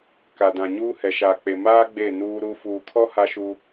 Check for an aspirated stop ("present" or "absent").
present